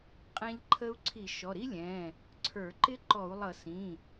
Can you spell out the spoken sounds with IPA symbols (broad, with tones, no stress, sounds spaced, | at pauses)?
qʼ ɛ̃˦˥ ʎ ǃʰ ə˦˥ u̯ ǀʰ i˧˩˧ ʃ ɔ˩˧˩ ɾ i˦˥ lʲ ɛ̃ː˩˧˩ | ǀʰ ə˞˧˩˧ ǃ ɪ˦˥ ǃ ɔ˧˩˧ u̯ lˠ ʌ˧˩˧ s ĩː˩˧˩